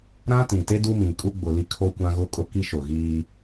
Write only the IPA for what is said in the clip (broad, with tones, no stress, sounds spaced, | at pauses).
ɾ ã˦ t ĩ˨ t e˦ d u˦ m ĩ˨ kʼ u˦ ɡ͡b ʊ˨ l i˦ kʰ o˦ kʷ ã˦ ɣ ʊ˦ kʼ ʊ˦ k i˦ ʃ ʊ˨ ɣ iː˦